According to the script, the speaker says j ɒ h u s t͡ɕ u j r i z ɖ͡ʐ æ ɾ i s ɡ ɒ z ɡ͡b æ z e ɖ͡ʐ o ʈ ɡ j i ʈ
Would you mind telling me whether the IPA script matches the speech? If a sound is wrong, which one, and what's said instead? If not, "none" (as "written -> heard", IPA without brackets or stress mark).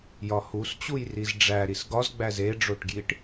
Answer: none